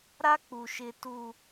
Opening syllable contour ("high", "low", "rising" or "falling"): high